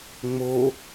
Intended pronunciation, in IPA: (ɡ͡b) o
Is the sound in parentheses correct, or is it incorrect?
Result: incorrect: ŋ͡m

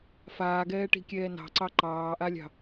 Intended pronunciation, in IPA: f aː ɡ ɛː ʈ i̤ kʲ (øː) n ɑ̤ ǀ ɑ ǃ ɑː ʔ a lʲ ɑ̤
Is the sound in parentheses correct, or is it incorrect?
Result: incorrect: ɛː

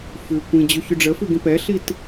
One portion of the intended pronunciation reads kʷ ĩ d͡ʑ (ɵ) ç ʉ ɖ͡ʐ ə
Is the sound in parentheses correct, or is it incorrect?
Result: correct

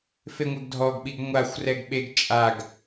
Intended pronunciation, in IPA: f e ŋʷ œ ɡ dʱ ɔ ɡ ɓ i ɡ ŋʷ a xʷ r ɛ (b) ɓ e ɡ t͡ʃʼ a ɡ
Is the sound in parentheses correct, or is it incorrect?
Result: incorrect: ɡ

